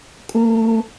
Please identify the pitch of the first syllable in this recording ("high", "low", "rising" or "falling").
high